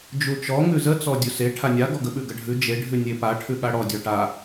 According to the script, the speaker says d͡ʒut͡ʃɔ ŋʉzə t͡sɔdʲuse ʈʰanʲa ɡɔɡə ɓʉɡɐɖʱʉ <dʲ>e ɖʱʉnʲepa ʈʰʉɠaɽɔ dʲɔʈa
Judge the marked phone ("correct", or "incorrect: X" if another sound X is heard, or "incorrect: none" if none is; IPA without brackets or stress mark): incorrect: d͡ʒ